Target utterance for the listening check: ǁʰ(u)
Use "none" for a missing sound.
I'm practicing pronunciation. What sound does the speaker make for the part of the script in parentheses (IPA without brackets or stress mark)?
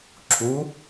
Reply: u